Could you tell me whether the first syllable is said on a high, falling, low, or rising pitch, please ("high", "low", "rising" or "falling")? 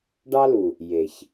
high